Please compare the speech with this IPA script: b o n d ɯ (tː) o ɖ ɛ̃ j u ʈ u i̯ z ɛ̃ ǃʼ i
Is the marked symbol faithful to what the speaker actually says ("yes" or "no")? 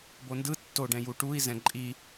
yes